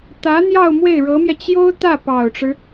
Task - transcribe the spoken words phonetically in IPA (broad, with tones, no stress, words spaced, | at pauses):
t̪ä˧˥ n̪jɑ˥˧ʊ̯ mwe˥˩ɪ̯ɻɤ˧˥mjɛ˧ t͡ɕjo˥ʊ̯ t̪ä˥˩pɑ˨˩ʊ̯ʈ͡ʂɻ̩˦